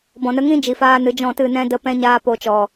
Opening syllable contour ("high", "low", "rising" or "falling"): low